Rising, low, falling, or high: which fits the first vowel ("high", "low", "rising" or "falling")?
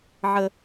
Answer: low